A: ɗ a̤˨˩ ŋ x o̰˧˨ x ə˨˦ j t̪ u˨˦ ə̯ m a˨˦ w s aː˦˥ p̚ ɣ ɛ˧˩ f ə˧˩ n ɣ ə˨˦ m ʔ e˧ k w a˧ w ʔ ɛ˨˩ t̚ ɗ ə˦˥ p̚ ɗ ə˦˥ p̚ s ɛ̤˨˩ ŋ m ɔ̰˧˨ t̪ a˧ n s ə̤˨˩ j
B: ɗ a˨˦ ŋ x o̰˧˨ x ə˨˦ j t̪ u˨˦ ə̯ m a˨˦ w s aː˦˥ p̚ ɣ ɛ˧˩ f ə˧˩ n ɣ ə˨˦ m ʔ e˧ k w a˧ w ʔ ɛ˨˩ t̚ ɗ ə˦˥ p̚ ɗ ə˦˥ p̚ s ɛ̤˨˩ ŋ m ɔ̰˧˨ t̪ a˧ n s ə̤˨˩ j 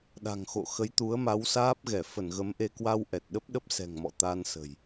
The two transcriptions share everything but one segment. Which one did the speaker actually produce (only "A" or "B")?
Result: A